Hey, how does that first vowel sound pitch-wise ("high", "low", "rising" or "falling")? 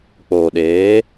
low